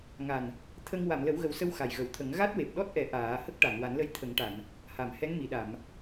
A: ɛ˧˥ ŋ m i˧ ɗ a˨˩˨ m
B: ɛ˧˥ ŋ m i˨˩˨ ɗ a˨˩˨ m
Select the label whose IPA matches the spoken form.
B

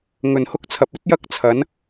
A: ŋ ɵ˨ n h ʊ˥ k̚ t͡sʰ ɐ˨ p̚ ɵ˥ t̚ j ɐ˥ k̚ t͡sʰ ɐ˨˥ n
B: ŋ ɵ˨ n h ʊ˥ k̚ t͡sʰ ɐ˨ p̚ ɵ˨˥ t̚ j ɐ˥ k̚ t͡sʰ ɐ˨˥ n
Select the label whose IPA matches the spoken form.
A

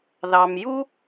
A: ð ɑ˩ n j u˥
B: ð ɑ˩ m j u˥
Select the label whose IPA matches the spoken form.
B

